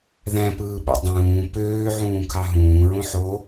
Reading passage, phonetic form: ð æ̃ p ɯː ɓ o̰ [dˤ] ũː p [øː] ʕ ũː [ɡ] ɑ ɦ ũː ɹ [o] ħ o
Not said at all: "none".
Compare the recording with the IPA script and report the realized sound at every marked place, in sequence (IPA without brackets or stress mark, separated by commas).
dˤ, øː, kʰ, õ